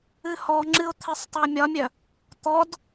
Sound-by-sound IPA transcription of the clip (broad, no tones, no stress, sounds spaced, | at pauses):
ɨ h ɔ ŋ͡ǁ ɨ ʊ̯ t̪ʰ e sˤ tˤ u ə̯ mʲ ɒ mʲ œ | t̪ ɔ d